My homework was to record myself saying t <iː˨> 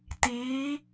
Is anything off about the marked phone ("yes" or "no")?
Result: yes